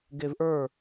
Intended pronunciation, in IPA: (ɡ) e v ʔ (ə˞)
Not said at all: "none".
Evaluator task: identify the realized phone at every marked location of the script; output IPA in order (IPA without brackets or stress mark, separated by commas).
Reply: ɡ, ə˞